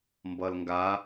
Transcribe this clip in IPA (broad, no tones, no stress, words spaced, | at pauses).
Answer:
mbʌlŋɡa